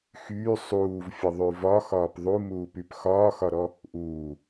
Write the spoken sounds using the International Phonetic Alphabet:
xyː sˤuːvfʲəðˤy vɒxɒːp ðˤumuːpyp xɒːxɒɾɔ | ʔuː

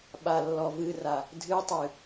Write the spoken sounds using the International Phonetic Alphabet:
ɓalːɔvɨra | dʱɨtˤɨ

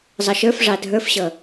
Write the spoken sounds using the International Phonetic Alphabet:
zˤʌʃə˞fʐɑ dʱə˞fɕʌ

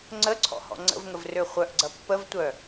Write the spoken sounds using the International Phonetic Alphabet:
ŋ͡ǀəǀʰɔ̰hɔ̰ ŋ͡ǀə̰vŋəvrø χʷœʔɡ͡ǀɐ pːəvtʷœ

